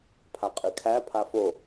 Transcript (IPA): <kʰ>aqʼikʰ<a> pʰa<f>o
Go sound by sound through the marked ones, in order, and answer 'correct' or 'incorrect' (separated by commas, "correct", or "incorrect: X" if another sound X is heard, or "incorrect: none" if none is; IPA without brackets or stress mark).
incorrect: pʰ, incorrect: æ, correct